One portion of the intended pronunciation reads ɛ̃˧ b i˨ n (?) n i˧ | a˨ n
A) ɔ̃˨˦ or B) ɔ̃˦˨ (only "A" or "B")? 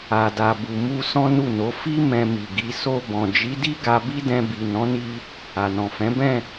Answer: A